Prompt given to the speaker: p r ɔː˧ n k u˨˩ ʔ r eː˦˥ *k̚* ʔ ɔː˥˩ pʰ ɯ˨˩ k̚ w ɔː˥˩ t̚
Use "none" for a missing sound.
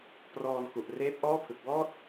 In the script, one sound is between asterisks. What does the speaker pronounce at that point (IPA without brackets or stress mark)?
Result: p̚